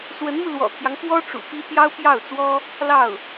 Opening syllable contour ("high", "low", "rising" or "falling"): rising